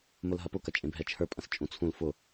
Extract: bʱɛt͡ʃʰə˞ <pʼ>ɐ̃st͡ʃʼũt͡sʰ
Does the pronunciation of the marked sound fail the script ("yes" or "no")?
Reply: no